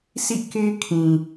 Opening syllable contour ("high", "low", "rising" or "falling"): falling